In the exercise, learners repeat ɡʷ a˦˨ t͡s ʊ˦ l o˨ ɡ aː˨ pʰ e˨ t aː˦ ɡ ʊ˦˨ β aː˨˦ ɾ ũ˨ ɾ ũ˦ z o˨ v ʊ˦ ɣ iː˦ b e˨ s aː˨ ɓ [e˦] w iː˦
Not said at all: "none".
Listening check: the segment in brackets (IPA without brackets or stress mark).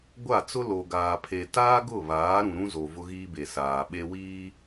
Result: e˦